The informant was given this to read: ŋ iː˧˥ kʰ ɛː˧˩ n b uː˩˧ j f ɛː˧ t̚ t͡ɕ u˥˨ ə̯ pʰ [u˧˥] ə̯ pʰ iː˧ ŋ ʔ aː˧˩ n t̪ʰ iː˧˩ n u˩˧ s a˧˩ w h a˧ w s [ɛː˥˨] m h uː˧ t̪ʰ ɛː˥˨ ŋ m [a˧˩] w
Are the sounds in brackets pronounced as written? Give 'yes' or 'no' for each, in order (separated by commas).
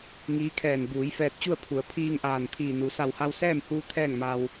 no, yes, no